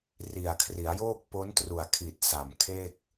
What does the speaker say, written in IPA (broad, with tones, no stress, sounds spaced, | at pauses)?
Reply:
r i˨˩ a̯ kʰ r i˩˦ a̯ j oː˥˩ k̚ p o˦˥ n t r u˨˩ a̯ kʰ i˨˩ t̚ s a˨˩ m kʰ e˥˩ k̚